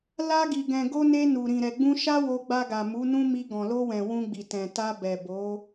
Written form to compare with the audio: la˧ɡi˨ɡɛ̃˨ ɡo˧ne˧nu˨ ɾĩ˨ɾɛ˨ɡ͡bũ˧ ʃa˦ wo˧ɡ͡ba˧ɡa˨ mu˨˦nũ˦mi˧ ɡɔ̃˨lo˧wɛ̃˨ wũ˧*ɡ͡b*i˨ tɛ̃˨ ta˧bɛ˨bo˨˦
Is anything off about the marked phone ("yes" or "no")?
no